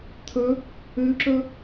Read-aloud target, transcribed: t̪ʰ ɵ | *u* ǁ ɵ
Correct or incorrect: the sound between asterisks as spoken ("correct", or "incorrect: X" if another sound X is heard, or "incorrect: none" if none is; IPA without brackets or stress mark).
incorrect: ʉ